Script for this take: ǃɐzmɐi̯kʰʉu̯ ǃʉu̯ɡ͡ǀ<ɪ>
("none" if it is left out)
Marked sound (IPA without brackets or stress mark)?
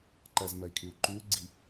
i